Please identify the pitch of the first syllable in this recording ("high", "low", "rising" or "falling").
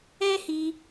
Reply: high